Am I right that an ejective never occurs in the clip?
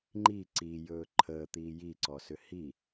yes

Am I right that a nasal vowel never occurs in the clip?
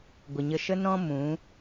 no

